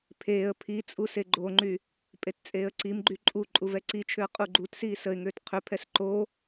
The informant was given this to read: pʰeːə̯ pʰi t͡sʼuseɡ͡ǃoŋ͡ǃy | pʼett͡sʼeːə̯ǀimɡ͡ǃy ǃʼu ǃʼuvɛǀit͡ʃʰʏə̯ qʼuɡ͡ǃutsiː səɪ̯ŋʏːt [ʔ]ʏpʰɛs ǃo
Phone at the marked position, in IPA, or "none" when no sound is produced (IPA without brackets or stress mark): qʰ